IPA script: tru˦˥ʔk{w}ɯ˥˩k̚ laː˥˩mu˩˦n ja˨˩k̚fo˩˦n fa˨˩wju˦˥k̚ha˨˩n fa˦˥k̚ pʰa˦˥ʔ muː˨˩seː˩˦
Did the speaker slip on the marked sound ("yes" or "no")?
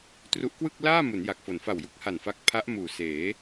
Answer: no